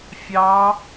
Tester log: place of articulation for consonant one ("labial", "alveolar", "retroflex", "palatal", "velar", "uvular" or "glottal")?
labial